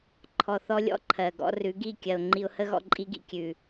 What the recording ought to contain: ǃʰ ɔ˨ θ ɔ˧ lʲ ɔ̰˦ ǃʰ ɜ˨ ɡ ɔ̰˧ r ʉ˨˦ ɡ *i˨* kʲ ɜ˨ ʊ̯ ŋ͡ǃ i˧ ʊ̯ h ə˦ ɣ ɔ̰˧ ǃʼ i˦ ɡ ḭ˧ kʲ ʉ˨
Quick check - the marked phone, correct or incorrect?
incorrect